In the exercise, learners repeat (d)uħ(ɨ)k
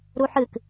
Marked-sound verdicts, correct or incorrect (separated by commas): incorrect, correct